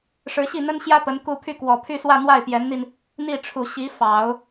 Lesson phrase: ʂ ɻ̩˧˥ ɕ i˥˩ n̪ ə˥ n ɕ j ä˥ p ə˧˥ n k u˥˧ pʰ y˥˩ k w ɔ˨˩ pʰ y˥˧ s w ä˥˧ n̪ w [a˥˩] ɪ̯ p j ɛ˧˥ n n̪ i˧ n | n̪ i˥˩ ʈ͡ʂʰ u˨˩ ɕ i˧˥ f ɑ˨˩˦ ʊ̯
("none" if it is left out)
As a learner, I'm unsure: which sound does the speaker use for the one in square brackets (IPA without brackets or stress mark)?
a˥˩